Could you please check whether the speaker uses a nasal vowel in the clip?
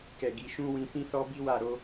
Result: yes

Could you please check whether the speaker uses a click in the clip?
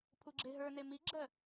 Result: yes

